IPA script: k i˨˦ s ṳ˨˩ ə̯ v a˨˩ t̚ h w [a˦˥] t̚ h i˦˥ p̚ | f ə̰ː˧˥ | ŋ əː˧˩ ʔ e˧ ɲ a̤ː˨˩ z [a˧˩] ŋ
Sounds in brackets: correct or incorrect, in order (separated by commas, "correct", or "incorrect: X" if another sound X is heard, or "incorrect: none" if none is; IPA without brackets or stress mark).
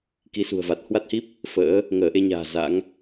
correct, incorrect: a̰˧˥